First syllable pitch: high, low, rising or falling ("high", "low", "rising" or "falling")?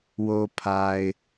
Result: low